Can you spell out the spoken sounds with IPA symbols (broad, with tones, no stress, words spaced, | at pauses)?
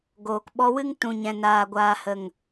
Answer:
ɡoː˨k ɓɔ˧wɨ˦ŋ tũ˨ɲɛ̃˨ naː˨ɡʷaː˨hə˨ŋ